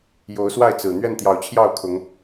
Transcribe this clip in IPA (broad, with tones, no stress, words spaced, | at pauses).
jo˨˦ʊ̯swa˥˨ɪ̯t͡sɹ̩˨˩ n̪ɥɛ˥˨nt̪jɑ˨˦ʊ̯t͡ɕʰjɑ˥˨ʊ̯ kʰʊ˨˦ŋ